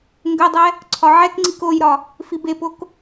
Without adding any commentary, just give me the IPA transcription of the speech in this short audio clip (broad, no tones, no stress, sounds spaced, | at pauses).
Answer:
ŋ ɡ ə dˤ ɛ | ǀʰ ɒ ʕ ɛ k ŋ͡ǀ i k o j ɾ ɒ | f i b e p o k